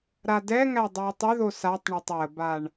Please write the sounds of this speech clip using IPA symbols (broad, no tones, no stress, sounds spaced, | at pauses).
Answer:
ɾ a d ɛ ŋ æ dˤ o j tˤ ʏ ð o s a tˤ ɳ o tˤ w ə b a ɳ